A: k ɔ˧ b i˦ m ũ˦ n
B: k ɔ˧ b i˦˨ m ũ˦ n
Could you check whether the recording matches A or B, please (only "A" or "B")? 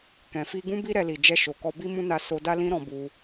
A